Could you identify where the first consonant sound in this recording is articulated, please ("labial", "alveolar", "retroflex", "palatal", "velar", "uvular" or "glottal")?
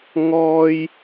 velar